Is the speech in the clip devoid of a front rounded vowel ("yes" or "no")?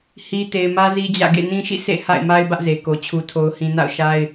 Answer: yes